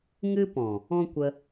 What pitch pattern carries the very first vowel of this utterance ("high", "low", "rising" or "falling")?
high